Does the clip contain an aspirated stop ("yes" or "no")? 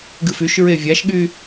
no